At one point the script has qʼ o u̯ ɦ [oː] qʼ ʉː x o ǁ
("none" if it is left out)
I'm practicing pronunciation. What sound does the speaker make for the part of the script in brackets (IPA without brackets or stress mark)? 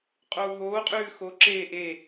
oː